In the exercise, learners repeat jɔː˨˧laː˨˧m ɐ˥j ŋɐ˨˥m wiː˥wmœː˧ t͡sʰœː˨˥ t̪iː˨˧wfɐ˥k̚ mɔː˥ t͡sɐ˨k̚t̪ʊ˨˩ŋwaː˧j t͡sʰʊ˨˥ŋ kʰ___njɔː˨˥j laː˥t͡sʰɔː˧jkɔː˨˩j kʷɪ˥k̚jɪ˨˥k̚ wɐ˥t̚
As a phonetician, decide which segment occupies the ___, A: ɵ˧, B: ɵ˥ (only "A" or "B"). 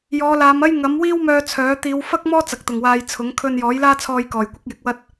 A